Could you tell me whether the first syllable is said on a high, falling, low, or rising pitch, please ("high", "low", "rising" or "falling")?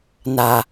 low